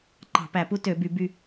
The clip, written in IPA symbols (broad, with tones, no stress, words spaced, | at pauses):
ǃɑ̤˧˩˧pæ˧˩˧pu˥ tø˧˩˧by˧˩˧by˦˨